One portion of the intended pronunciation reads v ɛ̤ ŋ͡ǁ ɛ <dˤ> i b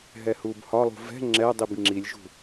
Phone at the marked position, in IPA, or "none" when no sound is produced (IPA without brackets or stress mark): dˤ